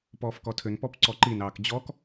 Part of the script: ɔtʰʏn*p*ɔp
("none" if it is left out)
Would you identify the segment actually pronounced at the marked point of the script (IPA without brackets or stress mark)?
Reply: p